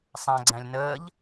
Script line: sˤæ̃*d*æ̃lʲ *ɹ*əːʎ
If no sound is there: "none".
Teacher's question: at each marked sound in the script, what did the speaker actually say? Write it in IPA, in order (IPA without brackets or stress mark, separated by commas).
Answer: ɡ͡ǀ, n